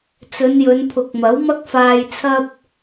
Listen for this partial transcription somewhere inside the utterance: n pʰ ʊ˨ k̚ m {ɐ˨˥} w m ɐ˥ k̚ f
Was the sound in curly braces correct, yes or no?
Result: yes